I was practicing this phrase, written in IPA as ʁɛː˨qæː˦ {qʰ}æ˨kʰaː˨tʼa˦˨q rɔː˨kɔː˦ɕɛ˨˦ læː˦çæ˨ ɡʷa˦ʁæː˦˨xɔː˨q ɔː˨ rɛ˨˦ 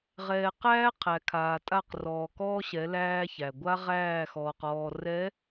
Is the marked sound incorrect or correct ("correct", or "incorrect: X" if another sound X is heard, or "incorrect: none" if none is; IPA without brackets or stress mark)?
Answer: correct